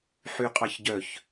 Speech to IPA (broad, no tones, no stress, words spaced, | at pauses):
ħyqʼɑçɟœç